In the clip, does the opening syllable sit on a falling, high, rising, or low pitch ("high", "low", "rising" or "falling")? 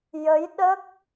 rising